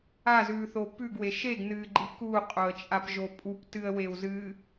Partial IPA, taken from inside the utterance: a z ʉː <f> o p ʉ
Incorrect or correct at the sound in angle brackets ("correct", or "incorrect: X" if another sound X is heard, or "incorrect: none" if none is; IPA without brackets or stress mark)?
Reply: incorrect: θ